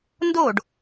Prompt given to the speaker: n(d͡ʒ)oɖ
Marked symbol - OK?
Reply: no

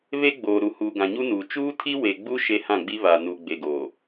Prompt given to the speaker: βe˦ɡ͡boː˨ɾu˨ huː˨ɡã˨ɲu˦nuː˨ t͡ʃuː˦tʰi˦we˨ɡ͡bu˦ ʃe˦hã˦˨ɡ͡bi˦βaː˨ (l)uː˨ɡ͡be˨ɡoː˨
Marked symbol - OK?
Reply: no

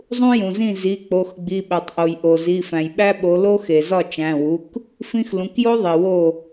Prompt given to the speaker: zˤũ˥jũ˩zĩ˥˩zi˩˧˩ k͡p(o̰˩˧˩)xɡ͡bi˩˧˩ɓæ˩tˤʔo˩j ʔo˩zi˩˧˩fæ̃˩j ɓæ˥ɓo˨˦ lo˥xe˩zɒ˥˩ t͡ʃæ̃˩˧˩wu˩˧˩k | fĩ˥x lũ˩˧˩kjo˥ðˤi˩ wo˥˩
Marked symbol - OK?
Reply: no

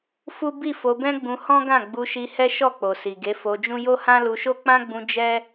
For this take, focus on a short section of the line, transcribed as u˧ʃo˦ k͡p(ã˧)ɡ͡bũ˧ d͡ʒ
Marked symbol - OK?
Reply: no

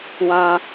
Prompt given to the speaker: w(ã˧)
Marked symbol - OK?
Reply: yes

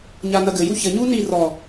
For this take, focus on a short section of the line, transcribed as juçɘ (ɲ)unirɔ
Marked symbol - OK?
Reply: yes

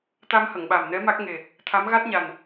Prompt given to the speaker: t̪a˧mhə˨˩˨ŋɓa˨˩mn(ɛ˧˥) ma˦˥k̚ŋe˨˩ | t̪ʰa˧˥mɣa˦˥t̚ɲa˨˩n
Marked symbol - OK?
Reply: yes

